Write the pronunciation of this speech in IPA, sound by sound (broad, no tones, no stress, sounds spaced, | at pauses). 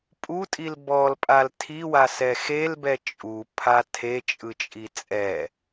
pʼ u tʼ i l b ɔ l pʼ a l tʰ i w a s ɛ x e l b ɛ t͡ʃʼ u pʰ a tʰ e t͡ʃʼ ɯ t͡ʃʼ i t͡sʼ ɛ